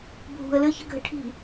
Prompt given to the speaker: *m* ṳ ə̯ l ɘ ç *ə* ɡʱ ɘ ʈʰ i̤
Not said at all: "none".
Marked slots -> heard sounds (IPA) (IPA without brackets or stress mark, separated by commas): bʱ, ə